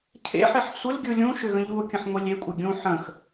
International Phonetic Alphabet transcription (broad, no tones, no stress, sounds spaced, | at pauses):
cʰ ḛ ħ ɪ ħ sʷ ɪ l ɡʲ ɯ lʲ ũ ʃ ʏ ɣ ə̃ ʎ u o̯ kʲ ə̃ ħ ŋʷ e lʲ e kʷʼ ɪ ɡʲ ũ ħ ə̃ x